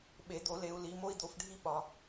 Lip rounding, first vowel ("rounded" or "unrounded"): unrounded